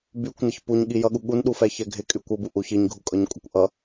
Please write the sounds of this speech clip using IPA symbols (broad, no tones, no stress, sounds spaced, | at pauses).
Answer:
b y kʷ n ɪ ç p u ɲ ɠ i j ʌ ɠ u ɠ u n ɗ u f ɛ ç ɛ ɡʱ ɪ kʼ y kʷ ɤ b u ʔ u ç i ɲ ɡʱ u kʼ ɤ ɲ kʷʼ ə kʷ ʔ ʌ